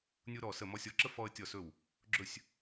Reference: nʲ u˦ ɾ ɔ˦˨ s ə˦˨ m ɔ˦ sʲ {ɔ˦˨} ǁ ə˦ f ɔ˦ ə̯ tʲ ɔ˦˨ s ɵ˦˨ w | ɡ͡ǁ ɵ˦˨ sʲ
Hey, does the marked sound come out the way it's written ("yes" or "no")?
yes